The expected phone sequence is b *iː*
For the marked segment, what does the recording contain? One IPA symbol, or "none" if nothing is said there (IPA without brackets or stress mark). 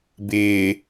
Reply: ɪː